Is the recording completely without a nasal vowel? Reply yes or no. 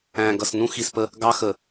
no